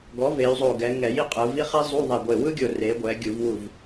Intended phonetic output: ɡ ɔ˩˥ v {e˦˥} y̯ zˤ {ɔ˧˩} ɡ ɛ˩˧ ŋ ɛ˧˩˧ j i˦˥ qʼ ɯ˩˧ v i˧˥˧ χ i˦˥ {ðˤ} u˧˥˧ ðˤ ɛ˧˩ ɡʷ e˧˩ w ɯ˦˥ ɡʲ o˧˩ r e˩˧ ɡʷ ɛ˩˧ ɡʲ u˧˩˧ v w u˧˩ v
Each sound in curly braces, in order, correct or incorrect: incorrect, incorrect, incorrect

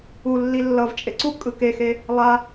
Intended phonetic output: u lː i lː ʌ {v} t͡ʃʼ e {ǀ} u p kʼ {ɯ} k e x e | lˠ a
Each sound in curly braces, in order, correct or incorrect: correct, correct, correct

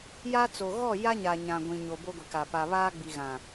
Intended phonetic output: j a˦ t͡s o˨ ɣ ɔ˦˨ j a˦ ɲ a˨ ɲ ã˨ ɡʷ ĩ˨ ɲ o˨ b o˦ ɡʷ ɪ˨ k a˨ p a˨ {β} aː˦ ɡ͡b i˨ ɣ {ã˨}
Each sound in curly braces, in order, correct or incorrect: correct, correct

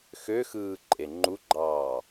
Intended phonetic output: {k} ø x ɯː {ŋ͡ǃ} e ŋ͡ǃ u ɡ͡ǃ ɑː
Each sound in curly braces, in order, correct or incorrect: incorrect, incorrect

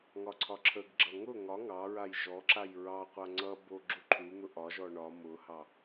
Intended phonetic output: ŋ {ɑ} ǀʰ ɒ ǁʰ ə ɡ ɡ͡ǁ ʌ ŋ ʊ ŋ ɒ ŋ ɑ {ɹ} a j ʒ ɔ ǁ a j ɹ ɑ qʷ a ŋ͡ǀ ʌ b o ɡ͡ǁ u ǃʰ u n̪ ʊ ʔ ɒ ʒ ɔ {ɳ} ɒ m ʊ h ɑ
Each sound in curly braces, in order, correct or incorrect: incorrect, correct, correct

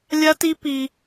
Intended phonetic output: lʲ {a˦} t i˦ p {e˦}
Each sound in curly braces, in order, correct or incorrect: correct, incorrect

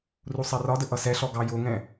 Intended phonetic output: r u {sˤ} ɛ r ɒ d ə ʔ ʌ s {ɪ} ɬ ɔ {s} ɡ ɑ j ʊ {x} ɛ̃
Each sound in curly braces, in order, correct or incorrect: correct, incorrect, incorrect, incorrect

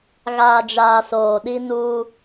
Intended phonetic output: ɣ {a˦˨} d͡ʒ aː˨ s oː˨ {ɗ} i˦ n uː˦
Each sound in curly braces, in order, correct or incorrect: incorrect, correct

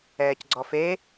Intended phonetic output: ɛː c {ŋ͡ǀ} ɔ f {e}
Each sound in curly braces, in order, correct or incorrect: incorrect, correct

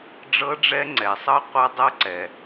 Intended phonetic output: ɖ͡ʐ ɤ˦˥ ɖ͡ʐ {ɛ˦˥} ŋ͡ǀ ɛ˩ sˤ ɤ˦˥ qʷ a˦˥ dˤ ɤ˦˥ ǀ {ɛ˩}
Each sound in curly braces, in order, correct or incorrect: correct, correct

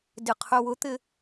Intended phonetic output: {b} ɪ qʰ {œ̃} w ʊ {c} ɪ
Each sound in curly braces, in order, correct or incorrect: incorrect, incorrect, incorrect

